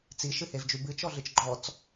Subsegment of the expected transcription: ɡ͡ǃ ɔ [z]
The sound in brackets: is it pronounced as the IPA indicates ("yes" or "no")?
no